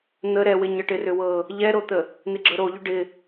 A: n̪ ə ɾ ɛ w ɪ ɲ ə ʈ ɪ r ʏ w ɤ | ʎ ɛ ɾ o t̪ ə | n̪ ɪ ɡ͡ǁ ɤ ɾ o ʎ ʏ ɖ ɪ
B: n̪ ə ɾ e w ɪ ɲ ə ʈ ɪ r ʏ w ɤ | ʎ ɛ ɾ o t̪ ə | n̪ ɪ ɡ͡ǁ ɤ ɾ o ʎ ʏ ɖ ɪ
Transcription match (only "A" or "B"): A